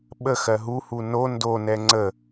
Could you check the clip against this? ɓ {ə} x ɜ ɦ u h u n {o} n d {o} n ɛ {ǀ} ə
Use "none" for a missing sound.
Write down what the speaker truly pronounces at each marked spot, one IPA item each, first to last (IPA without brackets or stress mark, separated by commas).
ə, o, o, ŋ͡ǀ